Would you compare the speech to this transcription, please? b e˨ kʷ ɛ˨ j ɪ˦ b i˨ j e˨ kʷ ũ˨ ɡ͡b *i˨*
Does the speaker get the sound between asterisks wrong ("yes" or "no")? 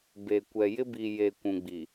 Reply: no